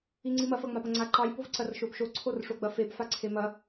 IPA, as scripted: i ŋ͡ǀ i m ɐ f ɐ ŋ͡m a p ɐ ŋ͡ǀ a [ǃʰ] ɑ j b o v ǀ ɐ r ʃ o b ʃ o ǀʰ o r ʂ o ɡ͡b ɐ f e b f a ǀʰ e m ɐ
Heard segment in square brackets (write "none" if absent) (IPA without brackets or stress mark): ǃ